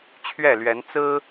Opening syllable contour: falling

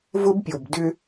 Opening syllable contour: high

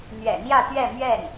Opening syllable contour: low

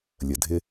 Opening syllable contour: low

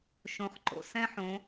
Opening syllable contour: rising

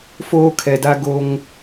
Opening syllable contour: high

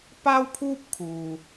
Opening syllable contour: high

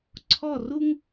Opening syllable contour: falling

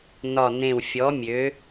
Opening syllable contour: low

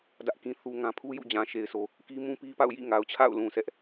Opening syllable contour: high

